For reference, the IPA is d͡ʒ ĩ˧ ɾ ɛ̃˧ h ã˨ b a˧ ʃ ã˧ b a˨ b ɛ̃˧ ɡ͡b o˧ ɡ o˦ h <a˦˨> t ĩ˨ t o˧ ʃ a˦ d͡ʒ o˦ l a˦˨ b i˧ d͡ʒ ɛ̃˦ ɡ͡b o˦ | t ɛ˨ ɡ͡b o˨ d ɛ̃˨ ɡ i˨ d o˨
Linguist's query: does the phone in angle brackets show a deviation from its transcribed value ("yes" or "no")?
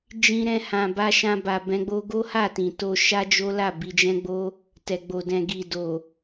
no